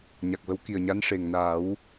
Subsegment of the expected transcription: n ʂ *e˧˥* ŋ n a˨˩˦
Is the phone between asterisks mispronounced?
yes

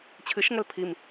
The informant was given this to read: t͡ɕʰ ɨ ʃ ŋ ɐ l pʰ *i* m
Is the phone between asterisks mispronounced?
no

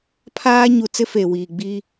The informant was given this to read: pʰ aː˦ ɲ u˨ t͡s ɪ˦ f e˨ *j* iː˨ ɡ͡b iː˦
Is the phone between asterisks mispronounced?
yes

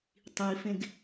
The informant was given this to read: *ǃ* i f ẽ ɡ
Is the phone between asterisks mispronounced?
yes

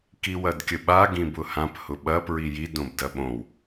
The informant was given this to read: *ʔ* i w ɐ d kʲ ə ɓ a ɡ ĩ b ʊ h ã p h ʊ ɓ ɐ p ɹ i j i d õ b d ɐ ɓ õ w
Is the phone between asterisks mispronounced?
yes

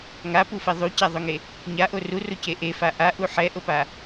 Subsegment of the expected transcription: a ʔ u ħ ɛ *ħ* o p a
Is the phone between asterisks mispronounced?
yes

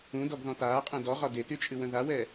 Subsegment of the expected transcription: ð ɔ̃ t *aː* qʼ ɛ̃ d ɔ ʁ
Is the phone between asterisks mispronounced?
no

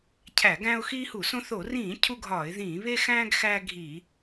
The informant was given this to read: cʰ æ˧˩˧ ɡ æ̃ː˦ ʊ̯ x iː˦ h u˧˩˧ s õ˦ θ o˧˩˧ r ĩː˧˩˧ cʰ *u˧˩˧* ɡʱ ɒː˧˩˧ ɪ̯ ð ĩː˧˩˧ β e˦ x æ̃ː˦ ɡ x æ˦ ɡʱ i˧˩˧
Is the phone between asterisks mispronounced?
yes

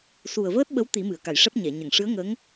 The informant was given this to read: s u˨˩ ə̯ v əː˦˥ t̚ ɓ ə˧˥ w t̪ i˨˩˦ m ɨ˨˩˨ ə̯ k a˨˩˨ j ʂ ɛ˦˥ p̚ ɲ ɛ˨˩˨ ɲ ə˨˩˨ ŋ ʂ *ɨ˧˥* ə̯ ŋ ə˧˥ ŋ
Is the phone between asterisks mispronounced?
no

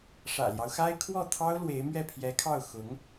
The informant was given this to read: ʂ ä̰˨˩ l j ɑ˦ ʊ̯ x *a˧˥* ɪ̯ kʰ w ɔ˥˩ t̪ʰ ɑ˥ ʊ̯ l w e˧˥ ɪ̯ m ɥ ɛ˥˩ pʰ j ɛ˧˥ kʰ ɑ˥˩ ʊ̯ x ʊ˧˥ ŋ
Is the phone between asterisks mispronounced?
yes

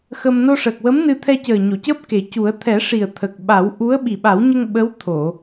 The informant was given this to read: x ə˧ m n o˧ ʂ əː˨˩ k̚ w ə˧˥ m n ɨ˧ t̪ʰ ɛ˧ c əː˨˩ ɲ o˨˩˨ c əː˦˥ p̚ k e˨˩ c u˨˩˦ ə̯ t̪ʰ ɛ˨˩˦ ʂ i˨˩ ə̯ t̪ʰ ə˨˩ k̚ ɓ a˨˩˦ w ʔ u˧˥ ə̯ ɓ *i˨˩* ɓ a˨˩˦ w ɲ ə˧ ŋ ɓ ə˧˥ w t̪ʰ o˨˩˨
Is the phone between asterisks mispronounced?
no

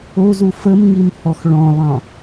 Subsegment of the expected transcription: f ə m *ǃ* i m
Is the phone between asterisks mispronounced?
yes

